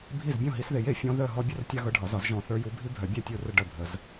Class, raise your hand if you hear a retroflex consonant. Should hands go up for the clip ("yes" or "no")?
yes